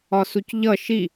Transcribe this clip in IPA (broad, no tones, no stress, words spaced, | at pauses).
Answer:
ɒsucʎʌ ʃi